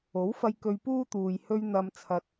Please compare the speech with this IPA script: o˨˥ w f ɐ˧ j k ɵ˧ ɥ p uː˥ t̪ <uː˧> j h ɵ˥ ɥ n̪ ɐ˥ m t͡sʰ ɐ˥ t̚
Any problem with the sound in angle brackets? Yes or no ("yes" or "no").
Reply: yes